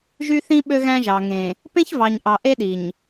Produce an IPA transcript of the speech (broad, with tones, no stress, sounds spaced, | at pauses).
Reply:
ʒ y˦ θ ĩ˦ ɓ ø˦ ɣ æ̃˦ ʒ ɑ˨ ŋ ẽ˨ | p ẽ˦ ç v ɑ˨ ɲ ʔ ɑ˨ ʔ e˦ ɗ i˨ ɲ